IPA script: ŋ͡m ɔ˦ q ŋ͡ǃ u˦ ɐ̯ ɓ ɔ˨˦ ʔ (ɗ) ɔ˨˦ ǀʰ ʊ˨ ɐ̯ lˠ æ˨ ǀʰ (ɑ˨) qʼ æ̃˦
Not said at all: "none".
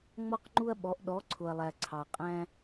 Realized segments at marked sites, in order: ɗ, ɑ˨

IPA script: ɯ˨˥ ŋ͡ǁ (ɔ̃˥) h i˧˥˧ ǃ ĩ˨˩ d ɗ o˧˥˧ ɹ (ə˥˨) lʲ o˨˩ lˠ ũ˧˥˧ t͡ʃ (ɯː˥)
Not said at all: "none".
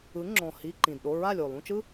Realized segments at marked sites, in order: ɔ̃˨˩, a˥˨, ɯ˥

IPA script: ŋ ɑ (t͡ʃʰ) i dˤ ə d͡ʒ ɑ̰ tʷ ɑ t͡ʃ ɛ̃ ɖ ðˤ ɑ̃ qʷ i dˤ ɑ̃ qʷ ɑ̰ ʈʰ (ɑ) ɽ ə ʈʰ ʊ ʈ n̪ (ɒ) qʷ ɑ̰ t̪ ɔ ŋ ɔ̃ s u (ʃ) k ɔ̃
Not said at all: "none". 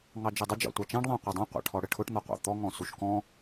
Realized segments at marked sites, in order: d͡ʒ, ɔ, ɒ, ʃ

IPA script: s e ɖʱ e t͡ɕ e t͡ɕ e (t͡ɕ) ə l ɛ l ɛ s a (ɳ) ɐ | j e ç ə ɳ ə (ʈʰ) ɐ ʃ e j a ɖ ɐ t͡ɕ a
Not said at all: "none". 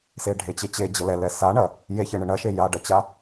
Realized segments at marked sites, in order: d͡ʑ, ɳ, ɳ

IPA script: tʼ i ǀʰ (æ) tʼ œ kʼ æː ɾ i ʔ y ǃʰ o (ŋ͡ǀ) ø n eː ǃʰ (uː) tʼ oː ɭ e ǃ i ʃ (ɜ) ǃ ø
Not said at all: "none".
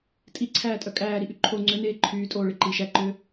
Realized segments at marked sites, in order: æː, ŋ͡ǀ, yː, æ

